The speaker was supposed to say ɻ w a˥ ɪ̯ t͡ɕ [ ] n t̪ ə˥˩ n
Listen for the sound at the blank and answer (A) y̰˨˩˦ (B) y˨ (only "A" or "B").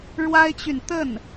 B